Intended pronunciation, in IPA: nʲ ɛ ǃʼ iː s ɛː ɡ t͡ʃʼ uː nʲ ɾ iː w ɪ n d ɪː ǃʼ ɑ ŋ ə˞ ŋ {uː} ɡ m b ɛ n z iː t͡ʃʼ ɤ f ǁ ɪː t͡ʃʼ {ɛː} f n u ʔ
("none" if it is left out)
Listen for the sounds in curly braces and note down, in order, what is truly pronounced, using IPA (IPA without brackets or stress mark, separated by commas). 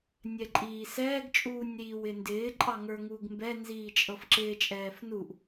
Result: uː, ɛː